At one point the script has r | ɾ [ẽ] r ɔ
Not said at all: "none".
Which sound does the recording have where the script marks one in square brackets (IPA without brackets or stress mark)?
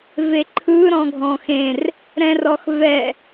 ɛ̃